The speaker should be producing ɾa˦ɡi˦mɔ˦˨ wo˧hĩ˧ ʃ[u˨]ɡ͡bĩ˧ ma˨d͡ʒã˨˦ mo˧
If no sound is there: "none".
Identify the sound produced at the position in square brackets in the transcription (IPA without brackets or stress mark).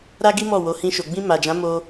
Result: o˨